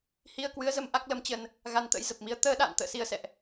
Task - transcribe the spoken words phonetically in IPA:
h i˧ ə̯ k w ɨ˨˦ ə̯ z ə˧ m ʔ a˦˥ k̚ l ə˨˦ m t͡ɕ ə˧ n | ɣ a˧ n t̪ ə̰˧˥ j z ə˨˩ p̚ m i˨˦ ə̯ t̪ əː˧ ɗ a̰ː˧˨ n t̪ ə̰ː˧˨ s i˧ ə̯ s ɛ̰˧˨ ʔ

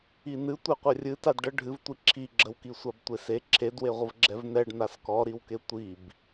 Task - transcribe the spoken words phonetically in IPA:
i n ɨ tʷ ɛ qʷ ɛ rʲ ɨ t a d ɖ ə ɖʱ ɨ v tʷ i ǁʰ i ɡ͡ǁ ə w k i sʷ a b tʷ e s e ǁʰ e d w e ʁʷ ə v ɡ͡ǁ ɛ v n ɛ ɖ n a s k ɔ ɾ i w k e tʷ i b

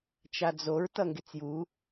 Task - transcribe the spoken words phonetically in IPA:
t͡ʃ a d͡z o ɹ t ʌ ŋ ɡ e t͡s j u

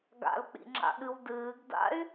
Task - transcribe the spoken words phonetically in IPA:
ɡ a̰ l k͡p ḭ ŋ͡ǁ a̰ ɠ ɨ w d ɨː ɡ d a̰ y̯

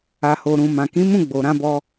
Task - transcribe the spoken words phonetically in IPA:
a˨ h o˨ ɾ ũ˨ m ã˨ k ĩ˨˦ m ũ˦˨ ɡ͡b o˨ ɾ ã˧ b ɔ˧

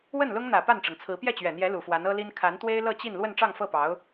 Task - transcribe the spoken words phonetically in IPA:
w ə˥˩ n l ʊ˥ ŋ n̪ ä˨˩ p a˥˩ n ʈ͡ʂ ɤ˩ ŋ t͡sʰ ɹ̩˧˥ p j ɛ˥˩ t͡ɕ ɥ ɛ˨˩ n̪ j ɛ˧˥ l u˨˩ f w a˧˥ n ɤ˥ l i˥ n kʰ a˧˥ n t̪ w e˥ ɪ̯ l ɤ˥˧ t͡ɕ i˥˧ n l w ə˥˧ n ʈ͡ʂ ɑ˥˧ ŋ f ɤ˥˩ p ɑ˧˥ ʊ̯

